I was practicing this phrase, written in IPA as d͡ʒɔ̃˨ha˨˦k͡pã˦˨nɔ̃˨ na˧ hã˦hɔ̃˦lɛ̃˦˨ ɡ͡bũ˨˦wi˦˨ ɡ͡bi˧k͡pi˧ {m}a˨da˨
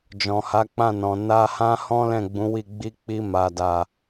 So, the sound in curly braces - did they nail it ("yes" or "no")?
yes